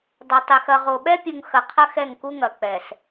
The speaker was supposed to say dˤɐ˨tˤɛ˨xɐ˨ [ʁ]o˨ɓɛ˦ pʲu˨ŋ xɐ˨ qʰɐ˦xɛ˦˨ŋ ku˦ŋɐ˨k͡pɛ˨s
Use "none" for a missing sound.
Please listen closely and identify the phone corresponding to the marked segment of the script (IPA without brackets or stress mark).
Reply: ʁ